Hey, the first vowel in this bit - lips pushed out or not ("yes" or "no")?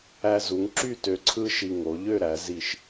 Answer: no